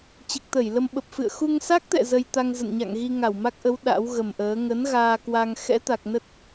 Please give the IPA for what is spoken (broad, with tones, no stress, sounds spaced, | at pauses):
t͡ɕ ɨ˨˩ k̚ t̪ ə˧˩ j l ə˧ m ɓ ə˨˩ p̚ f ɨ̰˧˨ ə̯ x u˧ ŋ s a˦˥ k̚ t̪ ɛ̰˧˨ z ə˧ j t̪ a˧ ŋ z ə̰˧˨ n ɲ a̰˧˨ ŋ ɣ i˧ ŋ a˧˩ w m a˦˥ k̚ ʔ ə˨˦ w ɗ a̰˧˥ w ɣ ə˨˩ m ʔ əː˨˦ ŋ ə˨˦ n ɣ aː˧ k w a˧ ŋ x ɛ̰˧˥ t̪ a˨˩ k̚ n ə˦˥ t̚